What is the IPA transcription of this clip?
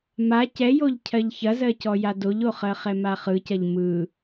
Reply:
ma cɛjoʎ cʰɜʎçɐzɜcɔ jadoʎoχɜ χɛmaχɯcɐʎ mɯ

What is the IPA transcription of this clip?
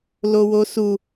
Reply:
lowosu

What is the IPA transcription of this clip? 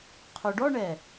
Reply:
qʰoɖɔɳɛ

